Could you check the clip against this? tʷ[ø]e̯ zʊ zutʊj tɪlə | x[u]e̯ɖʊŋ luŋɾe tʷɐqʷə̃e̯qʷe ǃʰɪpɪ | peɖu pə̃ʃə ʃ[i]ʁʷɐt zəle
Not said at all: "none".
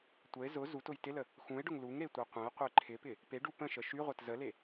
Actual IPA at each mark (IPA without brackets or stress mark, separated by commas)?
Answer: ə, ũ, y